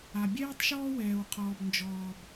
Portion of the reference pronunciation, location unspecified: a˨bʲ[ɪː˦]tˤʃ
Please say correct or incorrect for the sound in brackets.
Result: incorrect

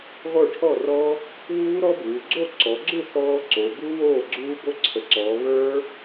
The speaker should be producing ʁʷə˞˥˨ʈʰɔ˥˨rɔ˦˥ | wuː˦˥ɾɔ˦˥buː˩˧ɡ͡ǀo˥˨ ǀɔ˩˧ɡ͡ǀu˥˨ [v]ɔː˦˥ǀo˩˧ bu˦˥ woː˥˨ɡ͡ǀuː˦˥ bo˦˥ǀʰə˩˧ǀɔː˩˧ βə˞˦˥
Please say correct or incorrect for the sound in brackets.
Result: incorrect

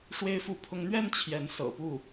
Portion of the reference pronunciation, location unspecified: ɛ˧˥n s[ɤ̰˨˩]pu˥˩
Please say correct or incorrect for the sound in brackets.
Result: correct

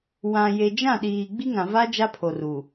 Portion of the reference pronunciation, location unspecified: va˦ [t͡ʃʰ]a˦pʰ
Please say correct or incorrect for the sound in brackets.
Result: incorrect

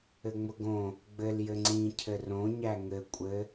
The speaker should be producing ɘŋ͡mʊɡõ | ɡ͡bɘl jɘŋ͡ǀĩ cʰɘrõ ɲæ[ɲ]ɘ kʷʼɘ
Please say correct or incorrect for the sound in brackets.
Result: incorrect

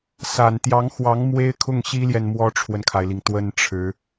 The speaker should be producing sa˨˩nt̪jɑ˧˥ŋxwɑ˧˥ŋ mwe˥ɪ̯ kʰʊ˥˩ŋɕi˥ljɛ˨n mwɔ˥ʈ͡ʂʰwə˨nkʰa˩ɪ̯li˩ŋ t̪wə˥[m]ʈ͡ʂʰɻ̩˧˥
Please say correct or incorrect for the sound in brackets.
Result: incorrect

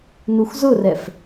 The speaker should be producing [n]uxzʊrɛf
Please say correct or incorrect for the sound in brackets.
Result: correct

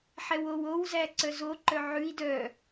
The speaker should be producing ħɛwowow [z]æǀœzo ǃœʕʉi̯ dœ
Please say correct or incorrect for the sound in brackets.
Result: correct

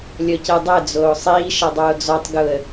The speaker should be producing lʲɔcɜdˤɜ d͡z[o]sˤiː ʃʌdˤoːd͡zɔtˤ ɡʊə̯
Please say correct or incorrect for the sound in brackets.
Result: incorrect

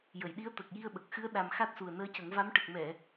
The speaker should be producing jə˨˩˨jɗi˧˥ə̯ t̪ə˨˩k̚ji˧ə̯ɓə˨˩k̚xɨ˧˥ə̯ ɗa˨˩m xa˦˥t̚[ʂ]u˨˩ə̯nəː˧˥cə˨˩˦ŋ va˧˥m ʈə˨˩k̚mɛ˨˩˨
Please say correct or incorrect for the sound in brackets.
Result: incorrect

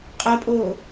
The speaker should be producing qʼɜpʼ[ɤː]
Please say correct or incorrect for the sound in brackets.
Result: incorrect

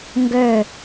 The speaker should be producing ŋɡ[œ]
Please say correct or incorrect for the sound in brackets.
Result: correct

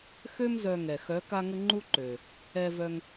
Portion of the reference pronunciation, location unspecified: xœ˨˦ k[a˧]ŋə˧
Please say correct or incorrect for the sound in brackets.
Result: correct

